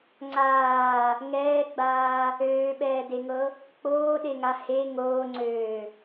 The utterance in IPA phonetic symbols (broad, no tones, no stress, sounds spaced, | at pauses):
ŋ͡ǀ aː | ŋ ɛː ɡ͡b aː | øː ɓ ɛː d e ŋ ɤ | k͡p oː ɗ e ŋ a h e ŋ oː ŋ͡ǀ øː